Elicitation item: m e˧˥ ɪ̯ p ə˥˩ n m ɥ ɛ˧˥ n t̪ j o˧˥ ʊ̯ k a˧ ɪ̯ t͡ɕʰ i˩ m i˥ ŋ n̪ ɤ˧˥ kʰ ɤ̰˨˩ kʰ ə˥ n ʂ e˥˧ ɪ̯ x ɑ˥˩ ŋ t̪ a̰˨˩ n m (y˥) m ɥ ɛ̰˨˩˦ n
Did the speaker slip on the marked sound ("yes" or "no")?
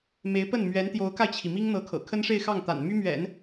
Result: no